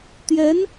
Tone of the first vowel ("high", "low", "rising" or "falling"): rising